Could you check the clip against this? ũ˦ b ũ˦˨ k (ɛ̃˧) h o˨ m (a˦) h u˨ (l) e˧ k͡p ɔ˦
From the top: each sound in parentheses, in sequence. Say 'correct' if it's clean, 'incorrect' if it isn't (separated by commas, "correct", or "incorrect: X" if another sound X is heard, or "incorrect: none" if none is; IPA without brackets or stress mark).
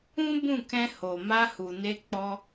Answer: correct, incorrect: a˧, incorrect: n